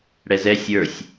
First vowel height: mid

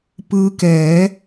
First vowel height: high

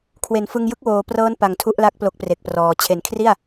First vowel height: mid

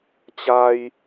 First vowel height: low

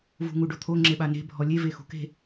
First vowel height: high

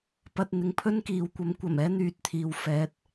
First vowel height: low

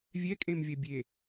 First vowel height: mid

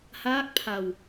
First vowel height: low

